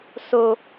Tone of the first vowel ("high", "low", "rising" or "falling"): high